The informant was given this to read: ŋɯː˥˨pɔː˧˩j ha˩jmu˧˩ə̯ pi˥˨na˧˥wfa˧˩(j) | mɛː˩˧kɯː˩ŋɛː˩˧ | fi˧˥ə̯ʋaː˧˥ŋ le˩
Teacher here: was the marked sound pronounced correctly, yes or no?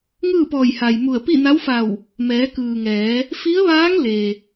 no